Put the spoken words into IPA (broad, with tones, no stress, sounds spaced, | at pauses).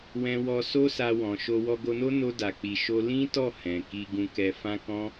w ɛ̃˧ w ɔ˧ s o˦ s a˧ w ɔ̃˨ ʃ o˧ w ɔ˧ ɡ o˧ n o˦ n o˧ d a˨ k͡p i˨ ʃ o˧ l ĩ˦ t ɔ˦˨ h ɛ̃˨ k i˧ ɡ ũ˧ k ɛ˧ f ã˦ k ɔ̃˦